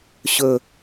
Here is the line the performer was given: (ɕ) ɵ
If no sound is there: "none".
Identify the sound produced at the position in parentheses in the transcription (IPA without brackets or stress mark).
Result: ɕ